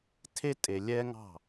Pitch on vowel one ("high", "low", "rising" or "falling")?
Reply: high